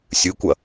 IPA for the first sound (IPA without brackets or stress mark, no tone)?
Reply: sʲ